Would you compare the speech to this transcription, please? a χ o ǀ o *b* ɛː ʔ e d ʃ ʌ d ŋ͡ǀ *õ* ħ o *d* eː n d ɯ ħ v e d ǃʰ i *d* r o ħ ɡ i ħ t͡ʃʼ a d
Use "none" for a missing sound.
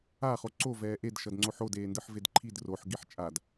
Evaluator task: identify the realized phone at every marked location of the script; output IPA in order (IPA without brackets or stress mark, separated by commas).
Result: v, o, d, d